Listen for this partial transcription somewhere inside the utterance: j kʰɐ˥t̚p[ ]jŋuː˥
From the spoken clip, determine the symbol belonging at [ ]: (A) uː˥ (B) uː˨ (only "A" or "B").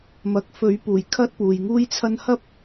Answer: B